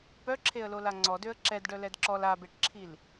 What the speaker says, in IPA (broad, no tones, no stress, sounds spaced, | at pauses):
p œ ǁʰ e ə̯ l o l a ŋ͡ǀ ɔ d ø ə̯ ǁ ɛ d ɖ œ l ɛ d ǁ ɔ l a b e ʈ ǁʰ i l